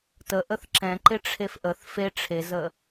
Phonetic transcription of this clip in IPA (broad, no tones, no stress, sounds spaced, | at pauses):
t ə ʔ ə θ ǁ ɛ̃ ǃ ɪ ʈ͡ʂʰ e f ʔ ə θ f e ʈ͡ʂʰ e z ə